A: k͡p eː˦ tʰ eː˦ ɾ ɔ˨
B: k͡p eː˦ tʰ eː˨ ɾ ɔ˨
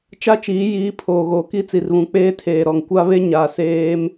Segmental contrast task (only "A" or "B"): B